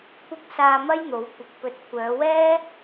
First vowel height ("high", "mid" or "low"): high